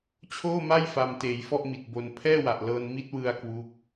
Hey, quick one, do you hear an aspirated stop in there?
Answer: yes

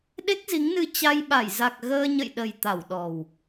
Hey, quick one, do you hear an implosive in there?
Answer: yes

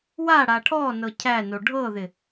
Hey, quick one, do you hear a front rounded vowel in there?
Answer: no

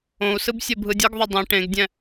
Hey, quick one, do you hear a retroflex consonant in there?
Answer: yes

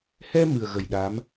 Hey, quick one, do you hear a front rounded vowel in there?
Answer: no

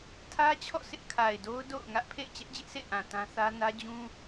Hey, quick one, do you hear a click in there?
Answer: no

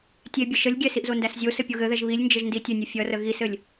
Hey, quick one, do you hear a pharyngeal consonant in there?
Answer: no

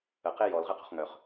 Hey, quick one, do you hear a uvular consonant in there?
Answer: yes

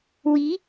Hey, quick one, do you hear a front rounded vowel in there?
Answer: no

